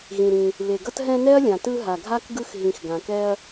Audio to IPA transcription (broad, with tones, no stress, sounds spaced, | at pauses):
ɣ ĩ˩ ɾ ĩ˩ | β e˩ ɡ ʌ˦ t ɦ ɛ̃˦ n ɛ˥ ɐ̯ lʲ ã˩ t ɯ˦ ɦ a˩ ɡʱ a˥ k ɡ ɯ˦ x ɦ ĩ˨ x ɡ ã˩ k ɛ˦ ɐ̯